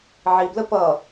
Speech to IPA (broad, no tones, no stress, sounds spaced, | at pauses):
ʕ i b l ə p ʌ